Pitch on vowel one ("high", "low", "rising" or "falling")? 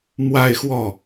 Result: falling